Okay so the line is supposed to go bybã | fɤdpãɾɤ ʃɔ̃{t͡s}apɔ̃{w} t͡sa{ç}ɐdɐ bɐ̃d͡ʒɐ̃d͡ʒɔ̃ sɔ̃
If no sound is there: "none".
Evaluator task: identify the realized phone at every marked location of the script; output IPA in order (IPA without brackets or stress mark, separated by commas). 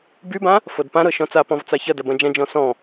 t͡s, v, ç